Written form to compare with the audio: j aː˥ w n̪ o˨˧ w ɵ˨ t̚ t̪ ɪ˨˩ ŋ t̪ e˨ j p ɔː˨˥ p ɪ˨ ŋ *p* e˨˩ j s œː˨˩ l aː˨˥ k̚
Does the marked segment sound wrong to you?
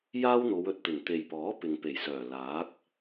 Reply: no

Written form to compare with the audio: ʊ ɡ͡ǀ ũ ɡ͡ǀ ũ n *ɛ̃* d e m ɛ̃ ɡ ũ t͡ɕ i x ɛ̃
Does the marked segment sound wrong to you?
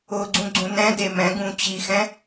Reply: no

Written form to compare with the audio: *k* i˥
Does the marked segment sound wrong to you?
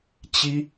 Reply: yes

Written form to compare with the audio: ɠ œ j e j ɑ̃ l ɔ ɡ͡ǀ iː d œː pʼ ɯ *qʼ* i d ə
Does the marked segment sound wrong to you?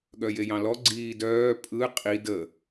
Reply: no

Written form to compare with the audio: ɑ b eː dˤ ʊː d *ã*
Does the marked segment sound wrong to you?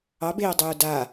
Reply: yes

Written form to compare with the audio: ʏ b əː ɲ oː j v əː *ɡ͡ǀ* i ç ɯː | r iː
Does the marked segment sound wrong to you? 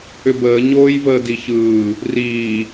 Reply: yes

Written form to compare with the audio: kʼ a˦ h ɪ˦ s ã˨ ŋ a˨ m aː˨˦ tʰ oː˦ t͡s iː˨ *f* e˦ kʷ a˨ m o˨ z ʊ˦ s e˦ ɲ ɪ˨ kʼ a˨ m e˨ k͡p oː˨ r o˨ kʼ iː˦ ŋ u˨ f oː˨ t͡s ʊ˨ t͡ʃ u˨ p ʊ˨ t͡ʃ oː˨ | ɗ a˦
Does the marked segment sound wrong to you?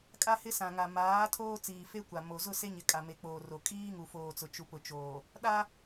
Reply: no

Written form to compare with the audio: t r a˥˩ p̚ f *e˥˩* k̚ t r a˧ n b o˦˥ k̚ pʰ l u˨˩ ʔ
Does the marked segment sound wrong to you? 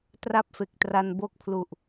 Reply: yes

